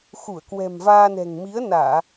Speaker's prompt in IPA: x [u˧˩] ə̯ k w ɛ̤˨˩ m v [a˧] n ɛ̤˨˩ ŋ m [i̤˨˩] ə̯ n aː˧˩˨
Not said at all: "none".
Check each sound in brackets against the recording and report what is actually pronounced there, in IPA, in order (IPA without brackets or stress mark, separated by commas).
u˧˩, aː˧, i˨˦